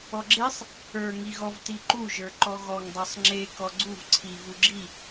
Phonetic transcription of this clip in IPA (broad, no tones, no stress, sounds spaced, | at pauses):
ɔ ɡ͡ǁ e sˤ | ə˞ ŋ i ɣ ɔ v t i ǃ u ʒ ə˞ ǃ ɔ ɣ ɔ ŋ dˤ ə˞ sˤ ŋ͡ǁ e k ɔ ɡ͡ǀ u v ǀʰ i v u ɡ͡ǁ i